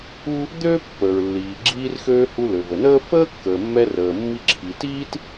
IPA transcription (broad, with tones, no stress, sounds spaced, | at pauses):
u˥ | d̪ øː˥ pː əː˩ ɹ lː iː˩ ɡ͡ǁ iː˧ r x øː˧ h u˧ l ø˩ v ə˩ n əː˥ f əː˥ kː əː˩ mː ɛ˧ r əː˩ mː i˧ ǁʰ i˩ t iː˥ t